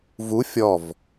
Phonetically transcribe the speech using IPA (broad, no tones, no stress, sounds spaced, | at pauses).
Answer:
v u fʲ ɔ v